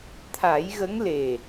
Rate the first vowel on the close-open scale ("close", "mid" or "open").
open